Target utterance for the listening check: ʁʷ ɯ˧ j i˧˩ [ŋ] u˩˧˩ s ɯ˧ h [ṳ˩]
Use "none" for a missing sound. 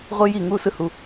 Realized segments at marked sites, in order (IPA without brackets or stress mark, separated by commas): ŋ, u˩